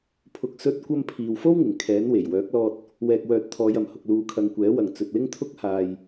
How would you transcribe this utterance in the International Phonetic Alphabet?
pʰ ʊ˨˥ k̚ s ɵ˥ t̚ kʷ ɐ˥ m pʰ iː˨ w f o˥ w ŋ ɪ˨˩ ŋ kʰ ɛː˨˥ n w e˨˩ j w œː˨˥ k̚ l ɔː˧ t̚ | w ɛː˨ k̚ w œː˨ t̚ t̪ʰ ɔː˨˧ j ɐ˨ m h ʊ˨ k̚ l uː˨˧ kʰ ɐ˨˧ ŋ kʷ ɛː˨˥ w ɐ˨ ŋ t͡s ɵ˨ t̚ l ɪ˥ ŋ t̪ʰ ʊ˥ k̚ h aː˨ j

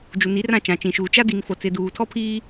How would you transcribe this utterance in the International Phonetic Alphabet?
d͡ʒ u˨ n i˨˦ r ã˦˨ t͡ʃ ã˨ t͡ʃ ĩ˨ ʃ uː˨ t͡ʃ a˦ d i˨ ŋ f o˨ t͡s ɪ˨ d uː˨ tʰ ɔ˦ pʰ iː˦

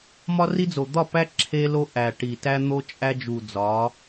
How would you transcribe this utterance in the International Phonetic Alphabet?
m ɒ˦ r i˦ d͡z o˨ d̪ ɒ˦˨ p æ˦ ǁʰ e˦ l o˦ ʔ æ˨ ʈ i˨ t æ˦ n̪ o˦ t͡ʃʼ æ˦ d͡ʒ u˨ d͡z ɒ˨˦

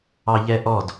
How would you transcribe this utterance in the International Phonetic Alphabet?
ɑ ʎ ɛ ʔ ɔ d

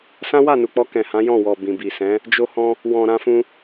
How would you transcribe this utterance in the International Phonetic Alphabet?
s ã˦ w a˦˨ n u˨ k͡p ɔ˧ k ɛ̃˨ h ã˨˦ j ɔ̃˦˨ w ɔ˨ b ĩ˨ b i˨ s ɛ̃˨˦ | d͡ʒ o˧ h ɔ̃˧ | w ɔ̃˨ ɾ ã˧ f ũ˧

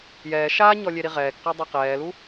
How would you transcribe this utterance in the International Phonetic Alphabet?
j ɛː ʃ aː ɲ ɔ lʲ e ɾ i ʁ ɛː k q a dˤ o q ɛː l u

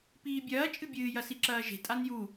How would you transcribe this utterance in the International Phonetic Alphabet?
p iː bʲ ɐː t͡ʃʼ ɨ bʲ ɨː j ɐ s i ǁ ɐː ʒ e̤ tʼ a n j u

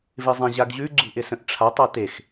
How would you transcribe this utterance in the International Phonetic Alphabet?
v ɪ zˤ ẽ ʑ a ɡ ʑ ʉ ɡ͡ǀ ṳ ʔ ɪ s ə̃ ʔ ʈ͡ʂʰ a tˤ a t e x

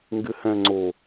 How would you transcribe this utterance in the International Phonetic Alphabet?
ŋ ɡ ɪ h ɛ̃ ŋ͡ǀ o

